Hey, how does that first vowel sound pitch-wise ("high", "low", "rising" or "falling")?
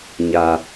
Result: low